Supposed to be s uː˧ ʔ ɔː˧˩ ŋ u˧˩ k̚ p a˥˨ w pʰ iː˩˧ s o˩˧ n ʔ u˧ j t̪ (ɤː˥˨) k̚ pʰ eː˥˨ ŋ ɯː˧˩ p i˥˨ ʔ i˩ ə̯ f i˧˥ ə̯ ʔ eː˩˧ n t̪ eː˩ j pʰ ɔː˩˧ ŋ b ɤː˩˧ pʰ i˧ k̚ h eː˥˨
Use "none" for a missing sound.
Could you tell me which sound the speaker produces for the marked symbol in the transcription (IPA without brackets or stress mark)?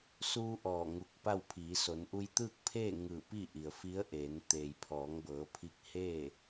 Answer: ɯː˥˨